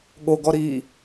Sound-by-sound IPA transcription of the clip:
ɠ o ɡ ɔ ɾ iː

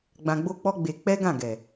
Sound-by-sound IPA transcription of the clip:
ɡ͡b ã˧ ɡ͡b o˦ k͡p ɔ˦ ɡ͡b e˧ k͡p ɛ˦ ɡ ã˦˨ ɡ ɛ˨

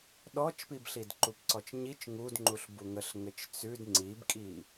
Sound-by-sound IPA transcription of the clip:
ɗ ɔ t͡ʃ p i b ɬ i d ǃ u p ǀ ɔ t͡ʃ ɲ i t͡ʃ ŋ u d ŋ͡ǃ u ɬ b u ŋ ə ɬ ŋ ɘ t͡ʃ t͡s ʉ d ŋ͡ǀ i b kʼ i

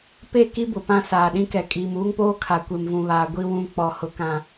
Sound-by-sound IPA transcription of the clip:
p e˦˨ k i˦ b ʊ˨ p ã˦ s aː˨ ɗ ĩ˦ k ɛ˨ kʼ iː˨ m uː˦ ŋ p oː˦ kʰ a˨ kʷ e˨ m v ũ˨ β aː˨ ɡʷ i˦ w ũ˦˨ k͡p ɔ˨ h ʊ˨ k ã˨

